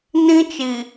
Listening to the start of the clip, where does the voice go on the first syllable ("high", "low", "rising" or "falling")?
high